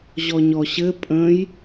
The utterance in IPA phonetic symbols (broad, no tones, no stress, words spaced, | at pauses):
ʑɔɲɔɕɘ pʼə̃j